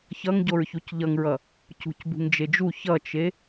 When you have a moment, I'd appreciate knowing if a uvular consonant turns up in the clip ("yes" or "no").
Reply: no